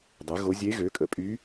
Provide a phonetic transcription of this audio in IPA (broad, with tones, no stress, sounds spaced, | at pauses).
dˤ y˩˥ ɣ o˧˥ zʲ e˧˥ ɣ ø˩˥ kʼ ə̰˩˥ pʼ y˧˥